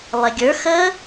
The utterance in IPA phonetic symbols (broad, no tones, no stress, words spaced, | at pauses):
lˠeɡʲə˞ xə